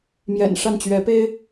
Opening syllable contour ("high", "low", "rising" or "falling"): low